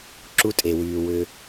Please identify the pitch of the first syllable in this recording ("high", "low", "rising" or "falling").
high